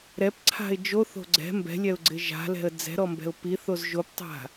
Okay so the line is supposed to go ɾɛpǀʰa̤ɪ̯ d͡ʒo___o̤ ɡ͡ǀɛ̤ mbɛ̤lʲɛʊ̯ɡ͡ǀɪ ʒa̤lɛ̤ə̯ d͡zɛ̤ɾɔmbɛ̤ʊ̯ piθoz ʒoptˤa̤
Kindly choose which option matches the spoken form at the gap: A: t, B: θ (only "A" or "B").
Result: B